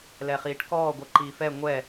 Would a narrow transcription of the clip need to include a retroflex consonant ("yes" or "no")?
yes